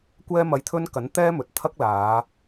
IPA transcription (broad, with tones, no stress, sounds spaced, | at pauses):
kʷ ɛː˥ m ɐ˧ j t̪ʰ ɵ˥ n k ɐ˨˥ n t̪ ɛː˥ m ɵ˨ t̚ t̪ʰ ɐ˥ k̚ l aː˨˧